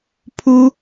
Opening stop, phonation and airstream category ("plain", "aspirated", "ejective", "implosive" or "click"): aspirated